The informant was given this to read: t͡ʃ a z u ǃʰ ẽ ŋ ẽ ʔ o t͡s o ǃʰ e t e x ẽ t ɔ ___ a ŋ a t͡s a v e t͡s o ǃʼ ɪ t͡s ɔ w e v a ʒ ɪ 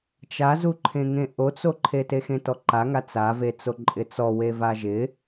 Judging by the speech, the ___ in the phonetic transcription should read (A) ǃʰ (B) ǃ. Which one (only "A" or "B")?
B